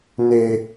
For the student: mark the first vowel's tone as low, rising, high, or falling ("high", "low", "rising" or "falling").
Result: high